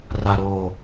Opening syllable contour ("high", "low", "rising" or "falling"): low